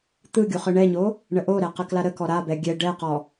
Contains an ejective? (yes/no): no